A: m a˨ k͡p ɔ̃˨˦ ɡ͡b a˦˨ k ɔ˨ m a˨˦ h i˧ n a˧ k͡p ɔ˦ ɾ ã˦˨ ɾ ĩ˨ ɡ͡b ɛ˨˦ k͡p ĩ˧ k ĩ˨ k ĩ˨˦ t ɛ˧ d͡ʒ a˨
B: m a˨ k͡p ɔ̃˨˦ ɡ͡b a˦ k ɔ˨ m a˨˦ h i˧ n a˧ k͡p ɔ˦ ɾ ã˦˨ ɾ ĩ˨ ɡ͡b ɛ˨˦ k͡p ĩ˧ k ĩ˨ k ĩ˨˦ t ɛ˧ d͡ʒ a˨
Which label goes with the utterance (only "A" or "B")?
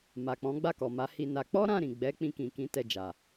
A